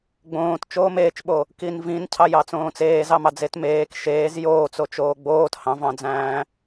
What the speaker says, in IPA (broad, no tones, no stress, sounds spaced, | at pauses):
ɡ͡b õː t t͡ʃ oː m eː t͡ʃ ɓ o | k i n v ĩ n cʰ ɑ j ɑ t͡s õː t͡s eː z ɑ m ɑ d͡z e t m eː k ʃ eː z j oː t͡s o t͡ʃ oː ɡ͡b oː t h ɑ̃ v ɑ̃ d͡z æ̃ː